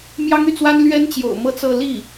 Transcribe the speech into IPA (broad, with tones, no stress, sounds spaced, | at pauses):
m j ɑ˥ ŋ y˥˩ t͡s w a˥ n l ɥ ɛ˥ n t͡ɕ j o̰˨˩ ʊ̯ m ɤ˥˧ t͡s ɤ˥˧ l i˥˩